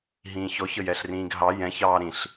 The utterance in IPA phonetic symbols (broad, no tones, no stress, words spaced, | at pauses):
ɦĩːçɔç əjɛɬrĩːɡɦɑ jɛ̃ç ɑːɾĩɬ